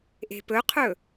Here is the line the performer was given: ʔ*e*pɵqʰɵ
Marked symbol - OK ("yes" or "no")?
no